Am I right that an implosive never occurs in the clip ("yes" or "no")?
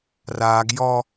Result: yes